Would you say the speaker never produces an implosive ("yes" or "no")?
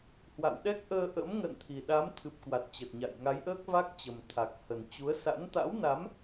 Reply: no